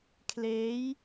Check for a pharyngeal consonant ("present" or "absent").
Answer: absent